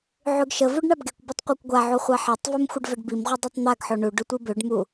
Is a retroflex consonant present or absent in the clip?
present